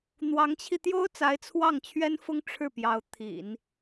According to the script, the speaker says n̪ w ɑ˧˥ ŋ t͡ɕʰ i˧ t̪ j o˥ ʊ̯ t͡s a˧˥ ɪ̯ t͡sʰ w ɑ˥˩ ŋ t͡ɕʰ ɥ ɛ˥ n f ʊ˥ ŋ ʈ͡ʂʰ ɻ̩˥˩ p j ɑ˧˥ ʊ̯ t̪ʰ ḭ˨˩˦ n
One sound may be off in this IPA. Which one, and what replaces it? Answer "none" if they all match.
none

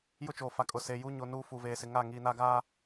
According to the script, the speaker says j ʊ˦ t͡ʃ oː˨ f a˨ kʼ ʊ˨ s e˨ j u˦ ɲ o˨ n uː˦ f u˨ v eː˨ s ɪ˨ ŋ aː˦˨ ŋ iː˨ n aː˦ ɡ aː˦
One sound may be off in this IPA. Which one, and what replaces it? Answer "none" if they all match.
none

